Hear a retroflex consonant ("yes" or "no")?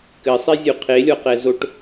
yes